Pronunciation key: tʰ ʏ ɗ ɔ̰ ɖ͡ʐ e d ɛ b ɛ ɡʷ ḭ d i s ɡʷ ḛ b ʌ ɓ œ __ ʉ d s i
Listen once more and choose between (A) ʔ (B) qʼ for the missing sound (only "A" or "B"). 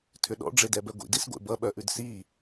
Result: A